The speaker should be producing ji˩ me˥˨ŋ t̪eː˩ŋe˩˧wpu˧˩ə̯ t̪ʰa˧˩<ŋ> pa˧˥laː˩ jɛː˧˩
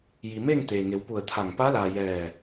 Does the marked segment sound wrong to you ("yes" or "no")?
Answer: no